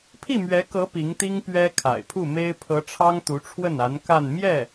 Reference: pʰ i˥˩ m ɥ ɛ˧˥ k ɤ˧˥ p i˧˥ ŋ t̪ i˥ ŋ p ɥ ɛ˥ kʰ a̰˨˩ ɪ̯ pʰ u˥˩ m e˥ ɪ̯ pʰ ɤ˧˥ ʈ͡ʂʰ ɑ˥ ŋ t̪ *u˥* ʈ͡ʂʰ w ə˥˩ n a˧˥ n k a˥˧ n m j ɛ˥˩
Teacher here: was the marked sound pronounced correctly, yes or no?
no